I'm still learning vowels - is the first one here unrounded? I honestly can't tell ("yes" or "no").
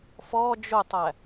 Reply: no